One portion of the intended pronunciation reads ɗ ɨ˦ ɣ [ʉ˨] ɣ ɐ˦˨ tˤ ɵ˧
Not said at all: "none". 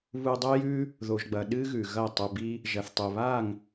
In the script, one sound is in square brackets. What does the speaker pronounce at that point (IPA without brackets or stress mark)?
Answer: ʉ˨